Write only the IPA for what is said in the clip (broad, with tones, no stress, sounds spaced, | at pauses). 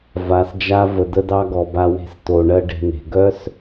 v a˨ s d͡ʒ a˦ v ə˨ d ə˦ d ɑ˦ ɡ ɔ˨ b a˧ w e̤˧ s t o˨ ɳ ɜ˦ ɖ e̤˧ n e̤˨ ɡ œ˦ s